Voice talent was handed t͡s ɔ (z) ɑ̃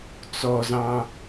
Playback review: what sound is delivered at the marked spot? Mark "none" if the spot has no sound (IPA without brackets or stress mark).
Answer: z